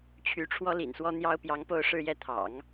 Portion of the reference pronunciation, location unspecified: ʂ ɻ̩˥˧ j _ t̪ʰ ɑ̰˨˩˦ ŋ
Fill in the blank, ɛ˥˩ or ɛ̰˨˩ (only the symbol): ɛ˥˩